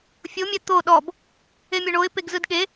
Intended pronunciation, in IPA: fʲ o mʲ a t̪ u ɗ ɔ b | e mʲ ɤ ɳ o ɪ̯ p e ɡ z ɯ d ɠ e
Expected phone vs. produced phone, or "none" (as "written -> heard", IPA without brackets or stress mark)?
u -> o